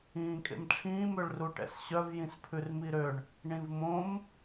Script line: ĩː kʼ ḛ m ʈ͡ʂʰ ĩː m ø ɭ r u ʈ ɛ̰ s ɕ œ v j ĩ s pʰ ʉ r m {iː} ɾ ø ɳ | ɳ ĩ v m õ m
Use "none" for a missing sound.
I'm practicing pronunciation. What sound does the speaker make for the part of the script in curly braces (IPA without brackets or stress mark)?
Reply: i